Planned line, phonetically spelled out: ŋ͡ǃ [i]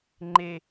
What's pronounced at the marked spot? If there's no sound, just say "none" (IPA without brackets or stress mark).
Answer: e